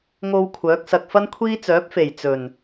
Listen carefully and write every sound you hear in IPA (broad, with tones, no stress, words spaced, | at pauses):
ŋo˧w kʷʰœː˨˥k̚sɐ˧k̚ fɐ˥nkʷʰiː˥ t͡sœː˨˥p̚fe˨˩j t͡sɵ˨˩n